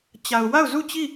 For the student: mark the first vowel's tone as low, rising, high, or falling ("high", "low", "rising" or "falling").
low